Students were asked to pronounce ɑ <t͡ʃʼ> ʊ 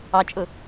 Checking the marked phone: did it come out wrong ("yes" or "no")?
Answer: no